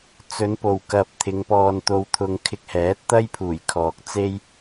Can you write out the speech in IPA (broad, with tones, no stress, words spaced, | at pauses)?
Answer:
t͡sɵ˨˧npo˨wkɐ˨p̚ t̪ʰɪ˨˧ŋpɔː˧nt̪o˧wt̪ʰʊ˧ŋ kʰɪ˧k̚hɛː˨˥t̚t̪ɐ˥jpʰuː˨˩j kʰɔː˨k̚t͡se˥j